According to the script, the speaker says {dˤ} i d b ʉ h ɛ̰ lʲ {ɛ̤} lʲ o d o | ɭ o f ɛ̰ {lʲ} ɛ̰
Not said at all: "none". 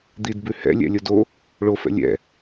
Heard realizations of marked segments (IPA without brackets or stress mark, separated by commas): d̪, ɛ̰, lʲ